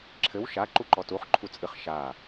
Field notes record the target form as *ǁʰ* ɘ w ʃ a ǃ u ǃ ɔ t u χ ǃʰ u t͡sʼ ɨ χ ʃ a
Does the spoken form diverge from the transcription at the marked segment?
no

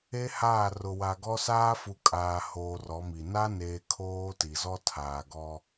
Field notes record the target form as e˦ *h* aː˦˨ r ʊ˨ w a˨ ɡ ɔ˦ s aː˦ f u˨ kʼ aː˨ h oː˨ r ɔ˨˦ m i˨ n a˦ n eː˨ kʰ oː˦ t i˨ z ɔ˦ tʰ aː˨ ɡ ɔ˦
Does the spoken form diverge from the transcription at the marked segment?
no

